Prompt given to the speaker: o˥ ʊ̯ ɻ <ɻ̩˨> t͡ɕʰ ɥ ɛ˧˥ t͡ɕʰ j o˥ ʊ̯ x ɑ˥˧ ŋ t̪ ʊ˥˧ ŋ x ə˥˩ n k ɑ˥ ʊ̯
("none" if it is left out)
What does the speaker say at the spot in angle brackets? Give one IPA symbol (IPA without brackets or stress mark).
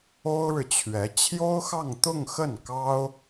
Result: ɻ̩˨